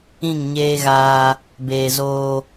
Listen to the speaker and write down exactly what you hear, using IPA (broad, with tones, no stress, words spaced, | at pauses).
ĩ˦˨ŋɲeː˦ɣaː˦ | beː˨zoː˦